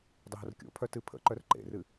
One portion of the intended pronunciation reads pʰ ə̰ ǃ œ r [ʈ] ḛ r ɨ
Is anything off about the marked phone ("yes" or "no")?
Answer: yes